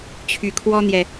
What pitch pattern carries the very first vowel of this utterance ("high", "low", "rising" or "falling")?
rising